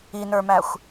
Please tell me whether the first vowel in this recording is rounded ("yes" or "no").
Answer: no